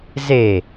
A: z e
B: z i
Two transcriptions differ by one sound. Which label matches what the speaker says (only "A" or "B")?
A